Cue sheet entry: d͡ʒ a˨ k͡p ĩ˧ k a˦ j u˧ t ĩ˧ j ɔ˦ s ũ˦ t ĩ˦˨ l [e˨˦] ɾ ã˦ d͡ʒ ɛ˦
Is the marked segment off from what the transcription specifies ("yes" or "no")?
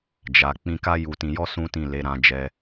no